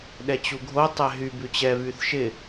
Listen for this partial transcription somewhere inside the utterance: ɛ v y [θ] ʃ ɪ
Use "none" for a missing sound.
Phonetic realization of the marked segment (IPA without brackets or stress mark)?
θ